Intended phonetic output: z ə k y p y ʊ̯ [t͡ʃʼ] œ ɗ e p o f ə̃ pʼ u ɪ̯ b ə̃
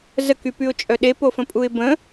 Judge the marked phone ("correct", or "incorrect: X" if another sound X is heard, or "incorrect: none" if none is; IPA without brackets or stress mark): correct